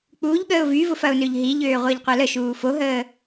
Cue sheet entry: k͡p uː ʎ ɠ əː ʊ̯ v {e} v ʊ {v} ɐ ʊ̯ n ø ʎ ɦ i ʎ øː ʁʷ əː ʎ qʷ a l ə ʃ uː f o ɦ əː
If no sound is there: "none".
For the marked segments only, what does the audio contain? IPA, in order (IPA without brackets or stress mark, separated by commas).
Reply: y, f